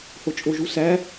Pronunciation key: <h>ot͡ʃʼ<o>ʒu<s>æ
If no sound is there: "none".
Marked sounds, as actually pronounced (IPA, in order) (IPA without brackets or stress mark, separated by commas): h, o, s